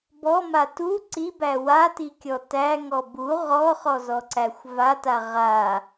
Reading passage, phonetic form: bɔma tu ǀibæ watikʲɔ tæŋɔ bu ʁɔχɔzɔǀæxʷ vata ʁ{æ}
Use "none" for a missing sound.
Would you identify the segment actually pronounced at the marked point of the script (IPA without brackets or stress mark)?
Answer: a